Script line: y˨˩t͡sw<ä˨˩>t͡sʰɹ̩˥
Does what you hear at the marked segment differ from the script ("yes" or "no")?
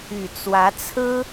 yes